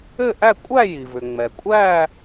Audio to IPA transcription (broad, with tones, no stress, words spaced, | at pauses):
ɘ˥˧ʔæ˥˧ kʷʼæ˥˧ji˩vʏ˩ ŋ͡mɛ˩kʷʼæ˥˧